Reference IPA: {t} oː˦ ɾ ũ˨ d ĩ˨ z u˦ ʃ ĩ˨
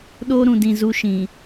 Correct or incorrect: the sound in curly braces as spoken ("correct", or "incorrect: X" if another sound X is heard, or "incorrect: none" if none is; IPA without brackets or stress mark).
incorrect: ɗ